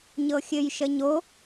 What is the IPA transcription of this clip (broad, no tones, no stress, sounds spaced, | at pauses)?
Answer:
ɲ ɤ xʲ ɘ j ʃ ə ɲ o